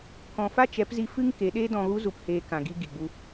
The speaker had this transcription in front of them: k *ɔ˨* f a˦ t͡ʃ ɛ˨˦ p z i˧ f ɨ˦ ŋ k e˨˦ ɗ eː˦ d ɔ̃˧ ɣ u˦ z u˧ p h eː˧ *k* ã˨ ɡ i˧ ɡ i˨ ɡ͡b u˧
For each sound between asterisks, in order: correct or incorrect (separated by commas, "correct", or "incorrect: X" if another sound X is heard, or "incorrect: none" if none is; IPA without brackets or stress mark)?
incorrect: ɔ̃˨, correct